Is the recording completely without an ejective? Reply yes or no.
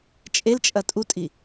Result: no